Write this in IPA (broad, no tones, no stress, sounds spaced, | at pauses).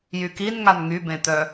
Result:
j y k i n ŋ a n ŋ y b ẽ t̪ œ